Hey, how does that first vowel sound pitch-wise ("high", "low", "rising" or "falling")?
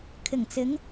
low